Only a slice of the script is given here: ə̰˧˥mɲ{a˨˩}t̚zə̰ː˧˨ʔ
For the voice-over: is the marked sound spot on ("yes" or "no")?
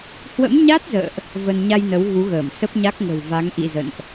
no